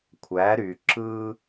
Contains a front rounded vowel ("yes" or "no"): yes